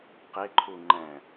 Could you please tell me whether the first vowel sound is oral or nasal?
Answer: oral